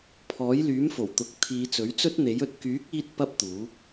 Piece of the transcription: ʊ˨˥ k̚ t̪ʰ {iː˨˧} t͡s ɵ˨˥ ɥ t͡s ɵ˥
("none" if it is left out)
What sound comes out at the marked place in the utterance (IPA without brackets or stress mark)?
iː˨˧